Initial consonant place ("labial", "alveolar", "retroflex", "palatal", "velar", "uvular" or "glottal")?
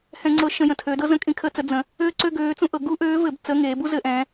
glottal